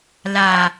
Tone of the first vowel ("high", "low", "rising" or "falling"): low